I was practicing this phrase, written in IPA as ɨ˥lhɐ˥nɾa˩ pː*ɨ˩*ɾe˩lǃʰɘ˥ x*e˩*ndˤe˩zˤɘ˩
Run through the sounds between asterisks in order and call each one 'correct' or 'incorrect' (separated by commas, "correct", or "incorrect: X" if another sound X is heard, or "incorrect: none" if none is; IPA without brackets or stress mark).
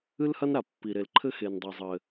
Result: incorrect: i˩, correct